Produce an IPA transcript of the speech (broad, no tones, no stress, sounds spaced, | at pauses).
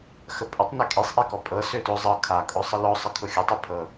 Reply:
x ə pʼ ə tˤ n ø kʼ e sˤ ʔ e k ɔ pʼ ɤ s ø t ʊ zˤ ɤ kʰ a kʼ ʊ sˤ ə l ɔ sˤ ə kʰ ʊ xʲ ə tˤ ø pʰ ɤ